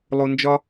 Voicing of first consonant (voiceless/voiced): voiced